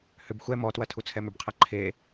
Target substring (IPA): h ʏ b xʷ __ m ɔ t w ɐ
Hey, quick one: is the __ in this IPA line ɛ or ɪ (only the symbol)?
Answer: ɛ